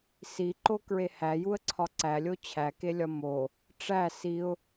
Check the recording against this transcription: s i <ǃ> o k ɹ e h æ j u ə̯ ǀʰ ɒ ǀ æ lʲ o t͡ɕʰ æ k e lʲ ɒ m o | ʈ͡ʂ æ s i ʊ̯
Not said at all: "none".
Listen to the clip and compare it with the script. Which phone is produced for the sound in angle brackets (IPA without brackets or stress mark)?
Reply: ǃ